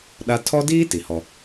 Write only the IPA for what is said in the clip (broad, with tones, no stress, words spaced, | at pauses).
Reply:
ɗa˦ tʰɔ˦diː˦ ti˨hɔ˦